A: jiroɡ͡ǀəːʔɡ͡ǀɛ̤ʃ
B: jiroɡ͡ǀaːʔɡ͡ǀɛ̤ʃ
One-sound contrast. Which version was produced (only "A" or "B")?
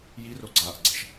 B